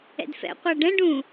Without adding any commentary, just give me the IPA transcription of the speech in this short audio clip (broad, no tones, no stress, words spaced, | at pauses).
ɛ̰dfɛ̰ qʷaɖɛ̃ ɖũ